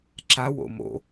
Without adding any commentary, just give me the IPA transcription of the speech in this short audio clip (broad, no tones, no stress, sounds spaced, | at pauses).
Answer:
ǁ a w o̰ m o̰